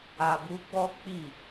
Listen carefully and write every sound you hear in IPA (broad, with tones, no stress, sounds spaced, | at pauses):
a˨ b u˨˦ ɡ͡b ɔ˦ k͡p i˦˨